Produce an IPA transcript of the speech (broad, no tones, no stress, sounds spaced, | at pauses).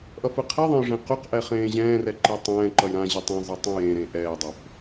ʔ ʌ f ɯ qʰ i ðˤ ẽ j ʐ ẽ q u q ʔ ɛ χ ẽː ʑ ɛ̃ː r ɛ ǃ i tˤ ɛ̃ː ǃ ʌ j ɾ ã ʑ i tˤ ɛ̃ zˤ i tˤ ɛ̃ j ẽ ɾ ẽ ʔ ɛː dˤ o f